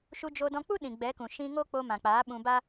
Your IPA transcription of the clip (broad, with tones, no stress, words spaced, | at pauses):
ʃu˧d͡ʒo˧dɔ̃˧ k͡pu˦ ɗĩ˨ɡ͡bɛ˨˦kũ˨ ʃĩ˧ŋo˦ k͡po˧ mã˨k͡paː˨˦ ɓũ˧ba˦